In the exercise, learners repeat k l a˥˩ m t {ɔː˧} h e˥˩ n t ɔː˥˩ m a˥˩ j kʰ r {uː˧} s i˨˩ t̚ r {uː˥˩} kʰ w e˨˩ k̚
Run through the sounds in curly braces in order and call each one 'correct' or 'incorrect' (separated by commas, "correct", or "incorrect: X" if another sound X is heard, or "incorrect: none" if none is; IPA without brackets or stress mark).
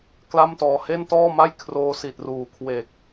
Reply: correct, incorrect: oː˧, incorrect: uː˨˩